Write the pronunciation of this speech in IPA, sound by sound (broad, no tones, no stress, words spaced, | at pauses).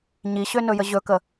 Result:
ɲiɕønɵjə ʑɵkə